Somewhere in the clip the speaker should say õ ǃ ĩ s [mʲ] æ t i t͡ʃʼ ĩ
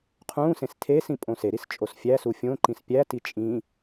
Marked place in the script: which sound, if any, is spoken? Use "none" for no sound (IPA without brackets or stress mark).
pʲ